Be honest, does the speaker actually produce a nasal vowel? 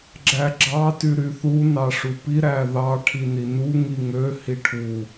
no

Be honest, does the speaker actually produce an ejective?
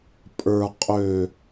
yes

